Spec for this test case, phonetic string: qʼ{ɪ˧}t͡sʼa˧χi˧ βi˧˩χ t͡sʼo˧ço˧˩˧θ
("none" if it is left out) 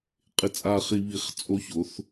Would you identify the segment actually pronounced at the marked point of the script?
ɪ˧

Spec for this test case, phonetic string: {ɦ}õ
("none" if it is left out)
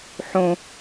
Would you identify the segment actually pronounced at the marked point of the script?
ħ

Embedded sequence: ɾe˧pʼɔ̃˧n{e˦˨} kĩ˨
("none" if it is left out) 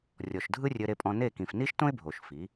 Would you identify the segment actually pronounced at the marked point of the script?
e˦˨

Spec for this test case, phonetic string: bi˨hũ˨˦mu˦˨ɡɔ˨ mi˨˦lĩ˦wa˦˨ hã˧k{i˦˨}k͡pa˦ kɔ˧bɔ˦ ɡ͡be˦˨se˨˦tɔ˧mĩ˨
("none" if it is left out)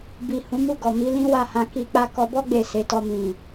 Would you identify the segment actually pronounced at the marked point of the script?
i˧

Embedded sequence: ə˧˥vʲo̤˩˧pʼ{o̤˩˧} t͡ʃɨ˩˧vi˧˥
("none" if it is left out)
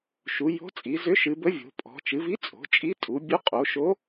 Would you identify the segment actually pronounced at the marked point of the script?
ɔ̤˩˧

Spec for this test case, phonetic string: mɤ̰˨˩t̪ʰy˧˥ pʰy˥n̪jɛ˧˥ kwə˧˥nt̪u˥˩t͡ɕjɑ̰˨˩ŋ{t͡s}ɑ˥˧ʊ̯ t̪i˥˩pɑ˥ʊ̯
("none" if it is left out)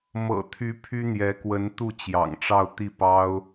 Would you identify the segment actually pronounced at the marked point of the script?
ʈ͡ʂ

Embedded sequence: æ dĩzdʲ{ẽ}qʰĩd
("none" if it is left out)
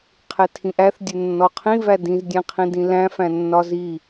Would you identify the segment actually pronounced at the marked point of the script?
ẽ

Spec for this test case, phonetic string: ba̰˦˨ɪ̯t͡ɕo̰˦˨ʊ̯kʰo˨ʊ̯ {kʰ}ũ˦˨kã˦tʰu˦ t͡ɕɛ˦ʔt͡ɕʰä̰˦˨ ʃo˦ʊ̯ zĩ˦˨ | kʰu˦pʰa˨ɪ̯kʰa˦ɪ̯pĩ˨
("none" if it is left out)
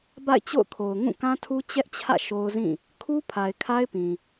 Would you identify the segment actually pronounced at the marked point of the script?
ŋ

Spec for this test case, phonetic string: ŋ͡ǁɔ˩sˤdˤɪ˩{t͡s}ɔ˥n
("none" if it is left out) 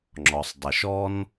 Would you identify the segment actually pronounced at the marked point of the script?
ʃ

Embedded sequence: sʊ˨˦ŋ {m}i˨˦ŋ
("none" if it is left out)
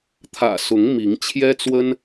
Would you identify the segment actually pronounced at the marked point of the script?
m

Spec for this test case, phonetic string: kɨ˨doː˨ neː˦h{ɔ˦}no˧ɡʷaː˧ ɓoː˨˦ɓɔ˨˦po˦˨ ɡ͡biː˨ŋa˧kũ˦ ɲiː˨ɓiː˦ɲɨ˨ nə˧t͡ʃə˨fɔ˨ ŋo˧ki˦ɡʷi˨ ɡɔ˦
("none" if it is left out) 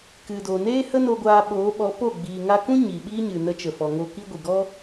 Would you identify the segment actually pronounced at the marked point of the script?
ə˦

